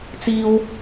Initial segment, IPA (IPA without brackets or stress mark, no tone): t͡s